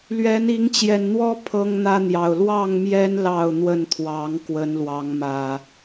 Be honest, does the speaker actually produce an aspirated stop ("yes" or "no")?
yes